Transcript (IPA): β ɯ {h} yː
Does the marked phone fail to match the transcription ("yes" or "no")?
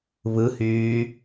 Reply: no